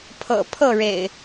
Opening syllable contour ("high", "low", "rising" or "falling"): low